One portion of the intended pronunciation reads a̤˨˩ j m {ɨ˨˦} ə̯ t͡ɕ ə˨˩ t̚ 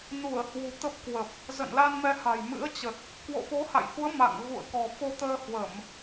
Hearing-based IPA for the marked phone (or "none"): ɨ̰˧˥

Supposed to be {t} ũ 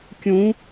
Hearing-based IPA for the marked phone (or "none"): kʲ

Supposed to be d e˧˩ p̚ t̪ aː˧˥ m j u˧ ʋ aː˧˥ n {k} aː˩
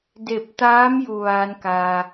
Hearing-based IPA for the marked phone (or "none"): k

